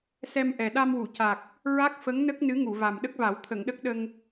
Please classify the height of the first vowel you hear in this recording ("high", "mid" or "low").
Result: mid